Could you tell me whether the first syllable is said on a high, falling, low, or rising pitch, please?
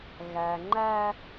low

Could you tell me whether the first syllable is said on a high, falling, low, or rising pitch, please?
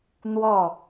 falling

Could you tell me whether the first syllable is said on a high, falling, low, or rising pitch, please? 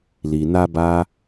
low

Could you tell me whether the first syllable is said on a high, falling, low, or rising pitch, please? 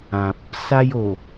low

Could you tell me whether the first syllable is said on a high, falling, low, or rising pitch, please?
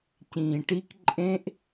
low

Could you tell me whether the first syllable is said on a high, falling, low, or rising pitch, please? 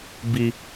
high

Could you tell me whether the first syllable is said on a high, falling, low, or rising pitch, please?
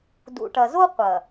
low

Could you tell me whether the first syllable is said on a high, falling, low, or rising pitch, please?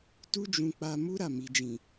high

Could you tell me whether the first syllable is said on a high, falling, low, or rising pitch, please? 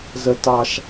high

